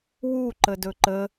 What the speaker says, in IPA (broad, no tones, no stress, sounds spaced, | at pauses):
w u ǃ ə d ɵ ǃ ə